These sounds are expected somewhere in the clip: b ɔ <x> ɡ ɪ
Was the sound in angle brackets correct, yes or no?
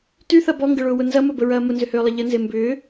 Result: no